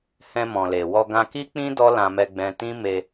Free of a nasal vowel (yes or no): no